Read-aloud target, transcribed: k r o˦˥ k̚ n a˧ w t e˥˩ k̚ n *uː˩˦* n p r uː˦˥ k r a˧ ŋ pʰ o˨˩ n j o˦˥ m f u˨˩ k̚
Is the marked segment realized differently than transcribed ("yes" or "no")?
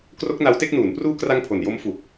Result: no